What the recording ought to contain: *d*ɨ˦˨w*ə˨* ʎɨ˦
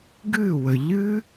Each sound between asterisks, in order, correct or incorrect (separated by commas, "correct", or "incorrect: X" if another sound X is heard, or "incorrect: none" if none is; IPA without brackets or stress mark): incorrect: ɡ, correct